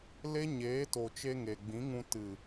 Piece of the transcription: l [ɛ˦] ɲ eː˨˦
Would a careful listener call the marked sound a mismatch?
yes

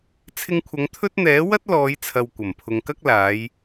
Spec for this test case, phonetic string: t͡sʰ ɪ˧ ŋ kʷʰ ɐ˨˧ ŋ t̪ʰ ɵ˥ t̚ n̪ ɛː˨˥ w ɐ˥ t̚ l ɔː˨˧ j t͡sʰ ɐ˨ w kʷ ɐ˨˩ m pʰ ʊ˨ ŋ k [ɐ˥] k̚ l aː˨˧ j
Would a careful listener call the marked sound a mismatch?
no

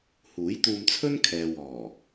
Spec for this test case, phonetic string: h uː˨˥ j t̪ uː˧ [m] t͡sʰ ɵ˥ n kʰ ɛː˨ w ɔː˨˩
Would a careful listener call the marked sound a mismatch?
no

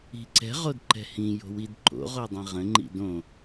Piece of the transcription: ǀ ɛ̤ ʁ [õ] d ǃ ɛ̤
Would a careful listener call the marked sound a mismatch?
yes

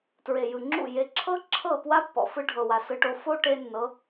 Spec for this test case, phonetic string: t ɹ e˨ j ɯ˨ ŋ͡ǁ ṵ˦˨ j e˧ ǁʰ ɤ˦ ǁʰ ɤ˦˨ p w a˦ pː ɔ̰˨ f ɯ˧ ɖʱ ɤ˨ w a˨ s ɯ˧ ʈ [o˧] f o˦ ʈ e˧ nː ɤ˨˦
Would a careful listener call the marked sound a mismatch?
no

